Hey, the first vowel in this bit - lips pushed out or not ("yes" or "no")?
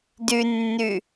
yes